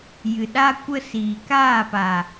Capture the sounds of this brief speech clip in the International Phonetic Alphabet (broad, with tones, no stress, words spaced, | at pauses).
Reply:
jɨ˨ɗa˦ kʷə˦siː˨ kaː˦˨pa˨